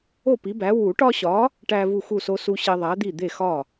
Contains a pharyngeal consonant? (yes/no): no